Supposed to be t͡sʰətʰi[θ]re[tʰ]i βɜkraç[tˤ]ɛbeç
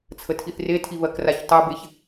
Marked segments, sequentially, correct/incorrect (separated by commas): correct, correct, correct